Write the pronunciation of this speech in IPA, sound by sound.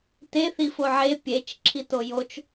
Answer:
t e θ i f o ʕ e pʲ e t͡ʃ ǁʰ i t o j o t͡ʃ

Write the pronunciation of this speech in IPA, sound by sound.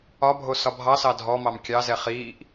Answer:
ɒ bʱ o s ɒ bʱ ɑ s ɑ dʱ ɔ m ɑ m kʲ ɑ z ɛ χ iː ʔ

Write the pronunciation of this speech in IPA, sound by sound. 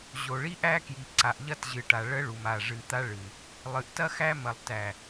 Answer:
ʑ o˨ ɭ i˦ ʔ æ˦ k j i˨ ǀ a˨ ʔ ʎ ɐ˦ t ʑ ɨ˨ ʈ a˨ ɭ ə˦ ɭ u˨ m a˨ ʐ ɨ˨ t̪ a˦ ɭ ɨ˨ | lˠ ɨ˨ ʔ t ɐ˦ x æ˦ m ɐ˨ lˠ t æ˨

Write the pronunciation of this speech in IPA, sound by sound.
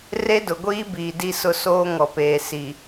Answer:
r e˦ d ʊ˨ ɡʷ iː˦ b iː˨ d i˦ s ʊ˦˨ s oː˦ ŋ ɔ˨ p eː˨ s i˨

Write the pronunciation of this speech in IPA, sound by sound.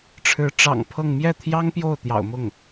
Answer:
ʈ͡ʂʰ ɻ̩˧˥ ʈ͡ʂ ɑ̰˨˩ ŋ pʰ ɤ˥˧ ŋ m j ɛ˥˩ t̪ʰ j ɑ˥ ŋ p j o˥˩ ʊ̯ t̪ j ɑ̰˨˩ ʊ̯ m ʊ˥˩ ŋ

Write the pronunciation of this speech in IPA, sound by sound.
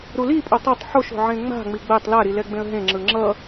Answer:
ɾ u l i pʼ o tˤ o tˤ ħ o ʃ o̤ ʕ ẽ ŋ͡m a̤ ŋ͡m i ɡ͡b ɛ tˤ l a ɾ i l ɛ ɡ͡b ẽ ə̯ ɦ ẽ ŋ͡ǁ ɯ ŋ͡ǁ ʌ

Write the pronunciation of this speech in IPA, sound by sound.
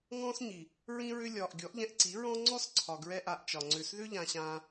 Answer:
ŋ ɔ̃ː˦ s ɲ i˨ | ɹ ĩ˧ ɹ ʏ˧ lʲ ɒː˨ ʔ ɡʲ ɔ˨˦ ʔ ʎ ɛ̃˧ ʔ ǀ i˨˦ ɹ ɔ̃˦ ŋ͡ǀ ɔ˦ s ǀʰ ɒ˨ ɡ ɹ ɛ˦ ʔ a˧ ʔ t͡ʃ ɒ˨ ŋ͡ǀ ʏ˨ s ð ʏ˦ ʎ ã˧ ɕ ãː˧

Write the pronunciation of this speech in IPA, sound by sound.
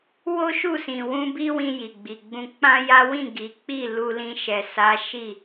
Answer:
w o˦ ʃ u˦˨ s ĩ˨ w ũ˧ b i˦ w ĩ˧ j i˨ ɡ͡b i˨ ɡ͡b ũ˧ k͡p ã˦ j a˦ w ĩ˦˨ ɡ i˨˦ k͡p i˦˨ l u˧ l ĩ˧ ʃ ɛ˨ s a˨˦ ʃ i˦˨

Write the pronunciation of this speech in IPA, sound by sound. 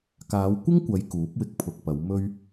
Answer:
k aː˨˧ w kʷ ɪ˥ ŋ kʷ ɐ˨˧ j k uː˨˥ p̚ w ɪ˧ k̚ pʰ ʊ˨ k̚ p ɐ˨˧ w m ɵ˧ ɥ

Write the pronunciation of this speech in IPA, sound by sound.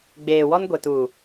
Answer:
ɡ͡b eː˨ w ɔ˦ n ɡʷ e˨ t uː˨

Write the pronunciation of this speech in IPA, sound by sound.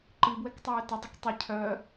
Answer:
ǃ i b w ɛ k tˤ øː t ə dˤ e k tˤ i cʰ œ

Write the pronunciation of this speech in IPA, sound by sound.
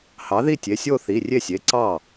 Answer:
h ɑ˩˥ ð i˥˩ tʲ e˩˧˩ sʲ o˥˧ θ i˩˧˩ rʲ e˥˩ sʲ e˩˧˩ ǀ ɑ˥˩

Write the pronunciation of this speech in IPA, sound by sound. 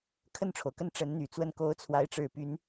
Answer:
kʰ ə˥˩ n ʈ͡ʂʰ o˩ ʊ̯ k ə˥˩ n ʈ͡ʂ ə˧˥ n n̪ y˨˩ t͡s w ə˥˩ n k o˧˥ ʊ̯ t͡sʰ w a˧˥ ɪ̯ ʈ͡ʂ ɻ̩˨˩ p y˧˥ n

